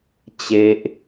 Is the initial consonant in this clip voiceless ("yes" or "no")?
yes